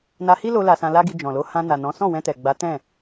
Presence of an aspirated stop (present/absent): absent